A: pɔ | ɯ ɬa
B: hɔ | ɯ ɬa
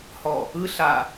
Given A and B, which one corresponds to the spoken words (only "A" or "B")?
B